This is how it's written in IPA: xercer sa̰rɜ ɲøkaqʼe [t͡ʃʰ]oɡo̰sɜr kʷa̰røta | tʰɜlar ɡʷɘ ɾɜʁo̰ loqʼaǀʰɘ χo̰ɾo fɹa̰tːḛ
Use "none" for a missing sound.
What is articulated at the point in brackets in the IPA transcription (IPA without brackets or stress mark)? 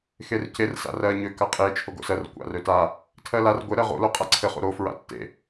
t͡ʃʰ